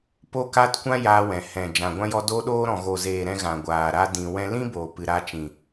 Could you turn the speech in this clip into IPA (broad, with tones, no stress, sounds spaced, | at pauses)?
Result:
p o˦ k a˦ t kʷ ã˦ j aː˧ w ɛ̃˨ h ɛ̃˨ d͡ʒ ã˨ ɡʷ ã˧ j ɔ˧ d o˧ ɗ oː˧ ɾ ɔ̃˨ ɣ o˨ z eː˨ ɾ ɛ̃˧ ɣ ã˨ ɡʷ aː˨ ɾ a˧ d ĩ˨ w ɛ̃˧ l ĩ˦ b oː˨ p ɨ˨ ɾ a˧ t͡ʃ ĩ˨